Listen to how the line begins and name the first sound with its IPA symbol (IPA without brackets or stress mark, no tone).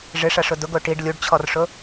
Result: ʐ